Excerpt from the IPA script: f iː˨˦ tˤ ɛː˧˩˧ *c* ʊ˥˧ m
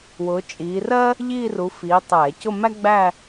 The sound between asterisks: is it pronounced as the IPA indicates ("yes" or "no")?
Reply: yes